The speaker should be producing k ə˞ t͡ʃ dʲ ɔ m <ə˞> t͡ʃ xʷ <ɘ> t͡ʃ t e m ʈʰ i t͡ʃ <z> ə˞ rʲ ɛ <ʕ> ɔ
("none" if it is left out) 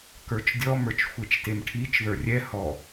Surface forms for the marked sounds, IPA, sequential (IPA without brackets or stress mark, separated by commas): ə˞, e, ð, h